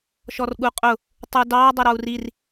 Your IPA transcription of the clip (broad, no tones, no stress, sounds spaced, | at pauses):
ʃ ɔ r ɠ u qʼ ʊ | tˤ u d ɑ dˤ ə ɾ ɒ u̯ r i r